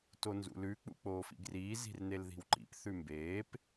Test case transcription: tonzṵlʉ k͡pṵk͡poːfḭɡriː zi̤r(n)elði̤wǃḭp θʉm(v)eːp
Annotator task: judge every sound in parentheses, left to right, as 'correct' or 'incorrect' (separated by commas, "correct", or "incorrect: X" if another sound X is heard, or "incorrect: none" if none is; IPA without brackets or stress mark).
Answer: correct, incorrect: b